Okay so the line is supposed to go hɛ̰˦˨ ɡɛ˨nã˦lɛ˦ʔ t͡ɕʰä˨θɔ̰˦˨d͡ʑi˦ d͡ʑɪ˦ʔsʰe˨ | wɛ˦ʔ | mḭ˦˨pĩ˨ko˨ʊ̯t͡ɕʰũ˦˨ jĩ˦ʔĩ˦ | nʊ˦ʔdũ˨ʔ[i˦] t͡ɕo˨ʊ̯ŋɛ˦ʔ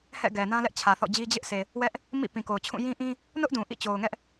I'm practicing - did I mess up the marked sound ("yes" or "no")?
yes